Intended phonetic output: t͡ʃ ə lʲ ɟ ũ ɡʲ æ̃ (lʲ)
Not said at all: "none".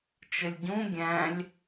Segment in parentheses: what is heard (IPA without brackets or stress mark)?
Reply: lʲ